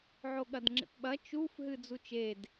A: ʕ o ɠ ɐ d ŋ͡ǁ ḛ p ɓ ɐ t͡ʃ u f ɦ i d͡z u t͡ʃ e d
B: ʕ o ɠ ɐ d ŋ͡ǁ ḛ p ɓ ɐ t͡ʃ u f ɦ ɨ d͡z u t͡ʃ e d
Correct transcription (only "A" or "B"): B